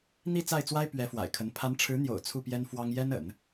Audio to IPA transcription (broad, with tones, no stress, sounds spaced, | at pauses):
n̪ i˥˧ t͡s a˥˩ ɪ̯ t͡s w a˥ ɪ̯ p ɥ ɛ˧˥ f w a̰˨˩ ɪ̯ kʰ ə˧˥ n pʰ a˧˥ n ʈ͡ʂʰ ɻ̩˧˥ n̪ j o̰˨˩ ʊ̯ t͡sʰ u˥˩ p j ɛ˥ n f w ɑ˥ ŋ j ɛ˥ n ə̰˨˩˦ n